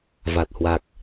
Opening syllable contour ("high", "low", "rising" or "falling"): low